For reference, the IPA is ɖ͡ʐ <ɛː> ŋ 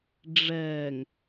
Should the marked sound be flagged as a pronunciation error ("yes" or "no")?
no